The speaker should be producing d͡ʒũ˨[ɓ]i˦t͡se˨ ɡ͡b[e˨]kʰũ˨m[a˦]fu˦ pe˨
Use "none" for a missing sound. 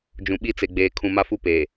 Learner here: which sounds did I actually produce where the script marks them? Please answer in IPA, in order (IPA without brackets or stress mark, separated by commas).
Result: ɓ, eː˨, a˦